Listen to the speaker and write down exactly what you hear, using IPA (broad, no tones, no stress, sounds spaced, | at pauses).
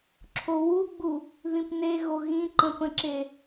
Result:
ǁʰ o w u ɡ͡b u | ð ĩ p n e ɣ o ɣ ĩ ǃ ə̃ p ə̃ ǁ e